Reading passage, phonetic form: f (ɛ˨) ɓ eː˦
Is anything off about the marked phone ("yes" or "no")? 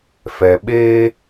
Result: no